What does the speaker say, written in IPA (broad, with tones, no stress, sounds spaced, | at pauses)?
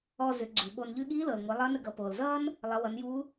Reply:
ɔ˧ z ʏ˩˧ ɡ͡ǀ ʉ˩ ɓ o˧ n ʎ ʉ˧ ɠ iː˧˥ l ɤ˩ l ŋʷ a˩˧ lˠ ʌː˧˥ n ə˧ ɡ ʌ˩˧ p oː˩ l z ʌː˥ n | lˠ ʌ˩˧ w ʌ˩˧ n j uː˧˥